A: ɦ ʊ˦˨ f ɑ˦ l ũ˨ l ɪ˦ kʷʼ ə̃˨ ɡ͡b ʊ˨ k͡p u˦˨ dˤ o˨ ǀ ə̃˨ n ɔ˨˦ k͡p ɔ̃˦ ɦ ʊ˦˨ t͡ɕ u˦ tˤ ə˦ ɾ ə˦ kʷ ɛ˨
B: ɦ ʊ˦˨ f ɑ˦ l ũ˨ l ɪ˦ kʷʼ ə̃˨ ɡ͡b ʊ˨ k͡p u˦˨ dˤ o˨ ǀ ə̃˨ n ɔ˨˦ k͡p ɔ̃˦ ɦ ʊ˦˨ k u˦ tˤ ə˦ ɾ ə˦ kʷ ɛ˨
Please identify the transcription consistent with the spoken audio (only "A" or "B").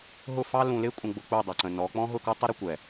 B